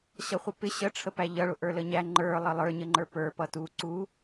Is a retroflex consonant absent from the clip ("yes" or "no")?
no